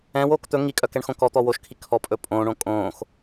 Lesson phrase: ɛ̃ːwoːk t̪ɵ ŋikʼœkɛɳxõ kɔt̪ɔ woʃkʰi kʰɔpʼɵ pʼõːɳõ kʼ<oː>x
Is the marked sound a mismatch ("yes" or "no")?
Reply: yes